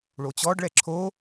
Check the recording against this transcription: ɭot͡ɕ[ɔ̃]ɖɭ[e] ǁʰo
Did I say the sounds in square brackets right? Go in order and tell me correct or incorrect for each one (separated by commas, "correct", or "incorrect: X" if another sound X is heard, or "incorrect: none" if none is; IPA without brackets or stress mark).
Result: incorrect: ɔ, incorrect: ɛ